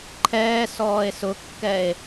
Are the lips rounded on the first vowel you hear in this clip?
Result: no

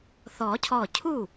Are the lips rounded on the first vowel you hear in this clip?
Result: yes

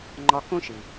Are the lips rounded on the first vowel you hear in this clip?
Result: yes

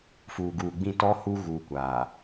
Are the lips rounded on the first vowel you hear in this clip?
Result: yes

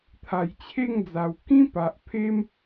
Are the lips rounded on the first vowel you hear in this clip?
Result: no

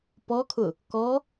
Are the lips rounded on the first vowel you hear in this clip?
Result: yes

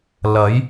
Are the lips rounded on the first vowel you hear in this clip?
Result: no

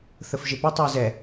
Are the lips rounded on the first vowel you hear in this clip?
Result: no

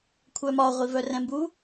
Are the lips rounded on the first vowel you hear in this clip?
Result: yes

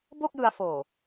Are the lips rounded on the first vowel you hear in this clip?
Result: yes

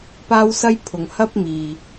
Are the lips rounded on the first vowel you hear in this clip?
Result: no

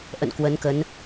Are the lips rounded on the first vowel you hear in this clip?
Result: no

